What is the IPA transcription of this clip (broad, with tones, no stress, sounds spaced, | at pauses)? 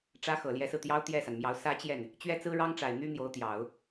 ʈ͡ʂ ä˥ x ɤ˨˩ l j ɛ˧˥ s ɹ̩˧ t̪ j ɑ˥ ʊ̯ t̪ j ɛ˥˩ s a˩ n m j ɑ˧˥ ʊ̯ s ä˥ t͡ɕ j ɛ˥˩ n | t͡ɕ ɥ ɛ˥ t͡s ɹ̩˥ ɻ ɑ˥ ŋ ʈ͡ʂ a˨˩ ɪ̯ n̪ y˥ n̪ j o˧˥ ʊ̯ t̪ j ɑ˨˩˦ ʊ̯